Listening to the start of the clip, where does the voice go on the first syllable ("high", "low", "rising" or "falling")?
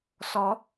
rising